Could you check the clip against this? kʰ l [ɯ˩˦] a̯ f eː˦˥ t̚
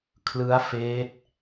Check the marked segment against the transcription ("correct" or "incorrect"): incorrect